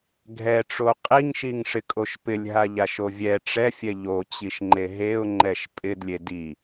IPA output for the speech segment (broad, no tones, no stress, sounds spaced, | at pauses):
ɡʱ ɛ ʈ͡ʂ o qʼ i ŋ ʃ i ŋ ʂ ɪ kʼ o ʃ p ɪ lʲ ɦ a ʎ a ʃ o vʲ ɛ ʈ͡ʂ ɛ fʲ ɛ ʎ o t͡ɕ i ʃ ŋ͡ǃ e ɦ e ʊ̯ ŋ͡ǃ ɛ ʃ pʼ ɪ d lʲ e d i